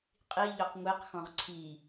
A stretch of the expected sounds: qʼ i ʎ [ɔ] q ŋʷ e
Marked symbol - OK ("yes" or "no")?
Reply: yes